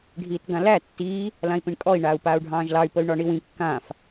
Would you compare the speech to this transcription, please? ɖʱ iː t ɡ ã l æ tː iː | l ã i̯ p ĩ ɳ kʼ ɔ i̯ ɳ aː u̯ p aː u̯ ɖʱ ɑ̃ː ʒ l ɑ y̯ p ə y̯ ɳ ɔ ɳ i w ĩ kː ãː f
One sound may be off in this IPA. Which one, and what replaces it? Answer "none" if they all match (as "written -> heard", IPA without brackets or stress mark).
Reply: none